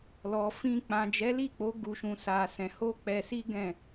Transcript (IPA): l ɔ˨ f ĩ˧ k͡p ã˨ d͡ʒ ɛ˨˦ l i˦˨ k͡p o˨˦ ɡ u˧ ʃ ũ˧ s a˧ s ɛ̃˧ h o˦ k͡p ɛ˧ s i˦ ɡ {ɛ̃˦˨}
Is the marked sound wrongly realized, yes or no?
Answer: no